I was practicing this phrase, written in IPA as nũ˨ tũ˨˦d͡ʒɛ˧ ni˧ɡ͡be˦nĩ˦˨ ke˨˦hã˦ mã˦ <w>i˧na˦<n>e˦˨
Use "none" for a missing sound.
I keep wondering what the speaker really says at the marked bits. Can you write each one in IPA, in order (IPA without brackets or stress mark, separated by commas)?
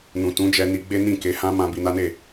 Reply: b, n